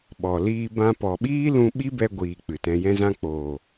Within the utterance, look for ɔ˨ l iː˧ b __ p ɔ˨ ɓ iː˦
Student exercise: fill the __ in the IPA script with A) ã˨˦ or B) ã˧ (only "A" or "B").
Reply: B